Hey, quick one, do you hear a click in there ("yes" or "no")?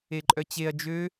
yes